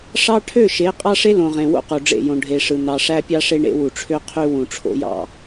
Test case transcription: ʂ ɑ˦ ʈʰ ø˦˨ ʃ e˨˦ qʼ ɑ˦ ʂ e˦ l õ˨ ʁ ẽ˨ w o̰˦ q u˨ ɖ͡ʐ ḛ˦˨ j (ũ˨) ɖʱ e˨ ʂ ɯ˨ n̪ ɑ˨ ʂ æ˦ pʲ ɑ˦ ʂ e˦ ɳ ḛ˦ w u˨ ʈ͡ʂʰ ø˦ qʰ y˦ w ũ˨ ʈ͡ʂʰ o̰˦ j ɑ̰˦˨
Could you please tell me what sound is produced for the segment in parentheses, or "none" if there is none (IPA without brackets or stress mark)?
õ˨